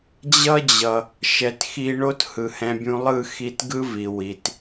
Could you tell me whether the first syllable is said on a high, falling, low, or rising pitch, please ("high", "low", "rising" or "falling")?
high